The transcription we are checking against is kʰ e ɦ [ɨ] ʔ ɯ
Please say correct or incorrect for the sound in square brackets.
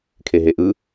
incorrect